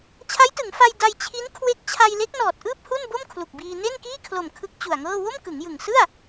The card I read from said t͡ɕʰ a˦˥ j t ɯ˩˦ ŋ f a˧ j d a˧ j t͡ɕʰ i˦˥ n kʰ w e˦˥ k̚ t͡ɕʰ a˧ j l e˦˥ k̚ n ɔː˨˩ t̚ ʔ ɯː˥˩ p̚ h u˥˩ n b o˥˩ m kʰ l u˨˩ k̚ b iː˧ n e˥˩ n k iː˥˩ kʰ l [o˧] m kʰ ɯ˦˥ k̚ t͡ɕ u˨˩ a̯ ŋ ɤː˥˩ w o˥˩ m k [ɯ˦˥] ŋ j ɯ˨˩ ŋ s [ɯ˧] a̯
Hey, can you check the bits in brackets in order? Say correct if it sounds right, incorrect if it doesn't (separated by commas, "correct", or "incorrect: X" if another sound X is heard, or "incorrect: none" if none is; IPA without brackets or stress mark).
incorrect: o˨˩, incorrect: ɯ˩˦, incorrect: ɯ˥˩